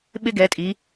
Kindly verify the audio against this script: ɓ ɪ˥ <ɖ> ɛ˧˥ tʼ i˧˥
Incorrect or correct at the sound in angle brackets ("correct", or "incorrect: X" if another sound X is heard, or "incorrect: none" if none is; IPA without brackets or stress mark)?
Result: incorrect: ɡ